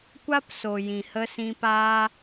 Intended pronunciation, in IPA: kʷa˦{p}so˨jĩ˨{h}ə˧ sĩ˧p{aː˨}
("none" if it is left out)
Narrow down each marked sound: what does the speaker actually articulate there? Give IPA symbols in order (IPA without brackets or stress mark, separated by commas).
p, h, aː˦